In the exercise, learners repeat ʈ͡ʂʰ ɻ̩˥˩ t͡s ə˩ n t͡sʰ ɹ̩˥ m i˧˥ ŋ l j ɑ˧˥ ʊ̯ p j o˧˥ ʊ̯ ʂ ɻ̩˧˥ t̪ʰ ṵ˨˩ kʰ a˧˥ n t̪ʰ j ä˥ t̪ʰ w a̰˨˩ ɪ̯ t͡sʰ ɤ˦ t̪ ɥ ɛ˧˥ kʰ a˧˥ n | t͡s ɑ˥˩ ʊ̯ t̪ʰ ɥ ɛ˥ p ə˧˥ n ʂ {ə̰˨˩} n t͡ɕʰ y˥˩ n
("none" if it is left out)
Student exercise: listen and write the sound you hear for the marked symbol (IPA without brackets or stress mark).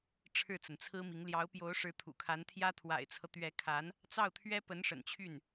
ə̰˨˩